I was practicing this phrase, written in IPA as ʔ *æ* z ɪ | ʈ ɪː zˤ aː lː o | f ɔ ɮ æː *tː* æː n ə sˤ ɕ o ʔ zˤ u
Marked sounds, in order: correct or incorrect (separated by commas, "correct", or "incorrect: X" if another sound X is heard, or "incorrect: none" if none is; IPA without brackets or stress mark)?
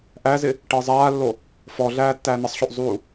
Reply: correct, correct